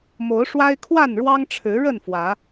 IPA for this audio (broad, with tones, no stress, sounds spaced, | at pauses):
m o˨˦ ʊ̯ ʂ w a˦ ɪ̯ kʰ w a˥˨ n ɻ w ɑ˦ ŋ ʈ͡ʂʰ ɻ̩˨˦ ɻ ə˥˨ n f w ä˨˦